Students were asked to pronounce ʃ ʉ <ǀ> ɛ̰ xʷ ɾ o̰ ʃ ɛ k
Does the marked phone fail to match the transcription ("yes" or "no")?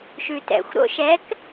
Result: yes